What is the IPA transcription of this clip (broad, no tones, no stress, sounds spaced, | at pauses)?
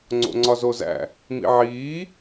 ŋ͡ǀ o̰ ŋ͡ǀ ɒ z o z æ̰ | m ḭ ʕ iː